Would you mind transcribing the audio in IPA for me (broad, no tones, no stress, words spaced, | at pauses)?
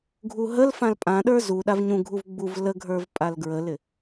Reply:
ɡʱuɦəlfãl pʼãɗə˞ zu ɗavɲũɡʱuv ɡ͡buv ləɡʱə˞v pʼalɡɹəlɪ